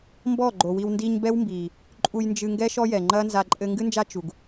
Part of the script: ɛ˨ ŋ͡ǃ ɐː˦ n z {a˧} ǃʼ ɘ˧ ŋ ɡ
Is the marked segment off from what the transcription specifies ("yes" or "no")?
no